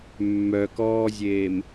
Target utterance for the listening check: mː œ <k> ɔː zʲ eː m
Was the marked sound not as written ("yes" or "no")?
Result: no